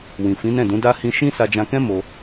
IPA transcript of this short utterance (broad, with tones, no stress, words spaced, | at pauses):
wĩ˨fĩ˨˦nɛ̃˦˨dũ˨˦ da˦ hĩ˧ʃĩ˦ sa˧d͡ʒã˧kɛ̃˦ mo˧